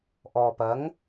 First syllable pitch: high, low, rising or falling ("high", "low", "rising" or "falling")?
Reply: low